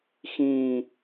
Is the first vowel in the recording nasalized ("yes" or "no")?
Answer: yes